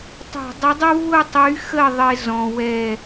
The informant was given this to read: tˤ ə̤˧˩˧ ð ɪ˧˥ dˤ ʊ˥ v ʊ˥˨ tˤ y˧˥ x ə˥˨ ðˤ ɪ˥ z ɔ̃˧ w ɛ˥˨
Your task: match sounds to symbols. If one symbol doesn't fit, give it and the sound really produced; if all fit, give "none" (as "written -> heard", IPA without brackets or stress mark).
ð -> dˤ